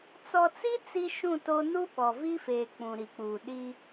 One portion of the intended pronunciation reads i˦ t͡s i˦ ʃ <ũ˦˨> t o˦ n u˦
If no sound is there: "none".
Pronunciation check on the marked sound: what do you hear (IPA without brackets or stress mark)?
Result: ũ˦˨